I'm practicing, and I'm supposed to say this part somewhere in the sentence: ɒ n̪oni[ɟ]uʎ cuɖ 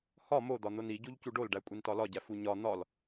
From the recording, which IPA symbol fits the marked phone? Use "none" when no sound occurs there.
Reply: ɟ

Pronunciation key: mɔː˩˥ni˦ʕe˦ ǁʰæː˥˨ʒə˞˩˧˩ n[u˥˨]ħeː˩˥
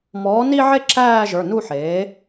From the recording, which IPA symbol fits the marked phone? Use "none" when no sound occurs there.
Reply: u˥˨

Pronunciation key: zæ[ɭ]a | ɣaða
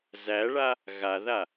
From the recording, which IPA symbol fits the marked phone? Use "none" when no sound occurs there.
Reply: ɭ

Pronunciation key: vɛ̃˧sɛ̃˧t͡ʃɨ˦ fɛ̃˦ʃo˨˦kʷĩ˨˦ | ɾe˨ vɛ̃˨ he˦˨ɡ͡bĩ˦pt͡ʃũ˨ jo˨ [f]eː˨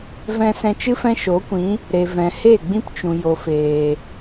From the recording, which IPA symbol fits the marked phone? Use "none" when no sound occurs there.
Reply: f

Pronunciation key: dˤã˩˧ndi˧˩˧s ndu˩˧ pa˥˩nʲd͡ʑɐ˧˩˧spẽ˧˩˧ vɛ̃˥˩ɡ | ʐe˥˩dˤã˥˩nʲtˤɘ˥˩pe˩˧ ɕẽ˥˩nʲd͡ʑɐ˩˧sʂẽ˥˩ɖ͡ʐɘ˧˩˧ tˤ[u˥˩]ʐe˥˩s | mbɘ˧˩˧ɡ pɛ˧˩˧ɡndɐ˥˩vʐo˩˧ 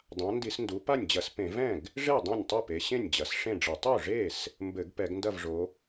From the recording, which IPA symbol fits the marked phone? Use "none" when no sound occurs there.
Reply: u˥˩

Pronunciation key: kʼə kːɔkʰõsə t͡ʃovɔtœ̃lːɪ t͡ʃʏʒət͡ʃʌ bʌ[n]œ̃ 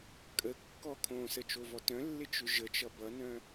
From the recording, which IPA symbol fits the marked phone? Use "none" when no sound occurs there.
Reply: n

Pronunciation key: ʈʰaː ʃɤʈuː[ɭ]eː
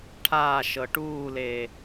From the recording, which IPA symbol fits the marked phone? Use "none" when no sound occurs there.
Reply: l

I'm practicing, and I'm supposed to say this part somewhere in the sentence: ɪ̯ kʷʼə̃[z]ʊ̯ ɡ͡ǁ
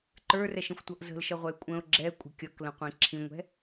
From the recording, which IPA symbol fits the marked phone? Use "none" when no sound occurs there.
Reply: none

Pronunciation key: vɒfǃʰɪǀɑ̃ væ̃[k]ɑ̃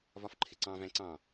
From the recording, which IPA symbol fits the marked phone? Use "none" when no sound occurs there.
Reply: ǀ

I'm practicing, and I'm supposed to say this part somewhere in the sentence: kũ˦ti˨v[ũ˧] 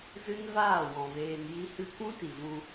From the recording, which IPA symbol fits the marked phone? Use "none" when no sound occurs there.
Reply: ũ˧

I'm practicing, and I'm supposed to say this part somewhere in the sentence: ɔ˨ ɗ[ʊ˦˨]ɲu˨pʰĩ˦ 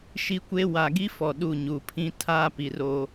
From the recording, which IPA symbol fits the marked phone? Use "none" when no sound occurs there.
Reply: u˦˨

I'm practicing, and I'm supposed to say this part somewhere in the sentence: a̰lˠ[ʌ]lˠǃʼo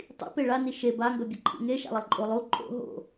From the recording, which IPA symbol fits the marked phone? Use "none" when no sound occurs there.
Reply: ʌ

